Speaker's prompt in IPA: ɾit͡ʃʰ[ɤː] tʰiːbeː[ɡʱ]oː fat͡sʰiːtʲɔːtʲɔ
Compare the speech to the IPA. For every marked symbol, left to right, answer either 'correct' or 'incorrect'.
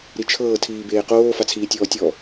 correct, incorrect: q

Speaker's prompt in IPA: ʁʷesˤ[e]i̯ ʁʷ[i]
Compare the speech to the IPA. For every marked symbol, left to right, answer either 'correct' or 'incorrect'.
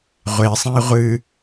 incorrect: ẽ, incorrect: ɨ

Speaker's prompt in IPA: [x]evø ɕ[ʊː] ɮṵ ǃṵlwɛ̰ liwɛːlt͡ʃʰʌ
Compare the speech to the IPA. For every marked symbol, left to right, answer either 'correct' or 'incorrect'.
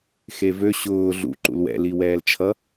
correct, correct

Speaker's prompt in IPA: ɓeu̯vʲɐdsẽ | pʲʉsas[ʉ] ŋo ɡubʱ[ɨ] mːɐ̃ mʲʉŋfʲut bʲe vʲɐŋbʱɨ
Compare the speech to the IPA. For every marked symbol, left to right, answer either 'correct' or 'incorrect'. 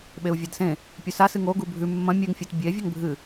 incorrect: ɨ, incorrect: ʉ

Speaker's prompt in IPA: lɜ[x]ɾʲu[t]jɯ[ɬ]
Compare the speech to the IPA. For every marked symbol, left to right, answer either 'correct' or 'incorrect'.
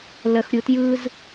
correct, correct, incorrect: z

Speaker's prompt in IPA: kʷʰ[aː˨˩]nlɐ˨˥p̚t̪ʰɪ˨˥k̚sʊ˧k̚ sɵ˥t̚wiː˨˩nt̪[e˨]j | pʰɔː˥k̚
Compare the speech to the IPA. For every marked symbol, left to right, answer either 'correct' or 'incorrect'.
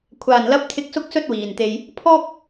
correct, correct

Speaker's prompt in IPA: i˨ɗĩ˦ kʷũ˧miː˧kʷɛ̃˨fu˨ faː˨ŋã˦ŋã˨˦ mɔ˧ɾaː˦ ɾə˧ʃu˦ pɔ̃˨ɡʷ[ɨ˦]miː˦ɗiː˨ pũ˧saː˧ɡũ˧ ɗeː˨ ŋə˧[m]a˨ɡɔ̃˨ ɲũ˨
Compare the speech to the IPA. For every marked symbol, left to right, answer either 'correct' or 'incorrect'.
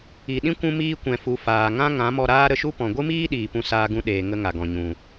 correct, incorrect: ŋ

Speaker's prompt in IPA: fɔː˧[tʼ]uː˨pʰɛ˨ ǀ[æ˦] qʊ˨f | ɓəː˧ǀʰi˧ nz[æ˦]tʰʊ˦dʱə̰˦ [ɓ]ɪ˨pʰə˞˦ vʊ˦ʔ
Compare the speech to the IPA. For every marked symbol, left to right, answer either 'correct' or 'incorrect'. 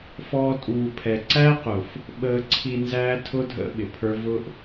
correct, correct, incorrect: æː˦, correct

